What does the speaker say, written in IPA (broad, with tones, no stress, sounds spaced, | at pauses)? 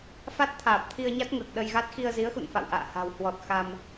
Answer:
f a˦˥ t̚ t̪ʰ aː˨˩ p̚ t̪ʰ i˧ ə̯ ɲ a˦˥ t̚ ŋ əː˨˩ k̚ ɗ ə˧ j ɣ a˦˥ t̚ x i˧ ə̯ z i˨˦ ə̯ x ṵ˧˨ n f a̰˧˨ w ʔ a̰ː˧˨ h a̤˨˩ w h w ɔ˨˩ t̚ x a˧ m